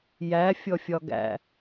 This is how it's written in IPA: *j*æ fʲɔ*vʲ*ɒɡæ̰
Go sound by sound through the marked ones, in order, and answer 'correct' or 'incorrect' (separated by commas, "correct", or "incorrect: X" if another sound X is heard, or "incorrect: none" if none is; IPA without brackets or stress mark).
correct, incorrect: fʲ